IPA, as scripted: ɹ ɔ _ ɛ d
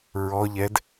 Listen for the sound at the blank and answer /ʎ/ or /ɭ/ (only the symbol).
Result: ʎ